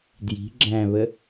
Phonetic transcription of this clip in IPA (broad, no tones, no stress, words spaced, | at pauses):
dji̤ ɡ͡ǁæ̃βə